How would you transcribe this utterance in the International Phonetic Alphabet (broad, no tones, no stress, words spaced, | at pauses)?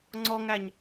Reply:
ŋ͡ǀɔŋæɲ